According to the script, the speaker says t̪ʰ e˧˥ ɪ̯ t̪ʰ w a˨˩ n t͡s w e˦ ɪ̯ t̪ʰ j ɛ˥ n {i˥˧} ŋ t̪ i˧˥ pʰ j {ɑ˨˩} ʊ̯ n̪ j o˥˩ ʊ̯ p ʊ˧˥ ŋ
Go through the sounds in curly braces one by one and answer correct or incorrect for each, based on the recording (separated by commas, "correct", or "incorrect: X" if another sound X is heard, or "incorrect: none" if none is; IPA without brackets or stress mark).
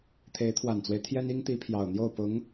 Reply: incorrect: i˥, correct